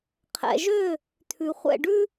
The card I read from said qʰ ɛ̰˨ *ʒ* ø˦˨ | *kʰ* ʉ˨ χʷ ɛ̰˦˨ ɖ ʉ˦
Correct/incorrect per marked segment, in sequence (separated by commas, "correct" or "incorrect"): correct, incorrect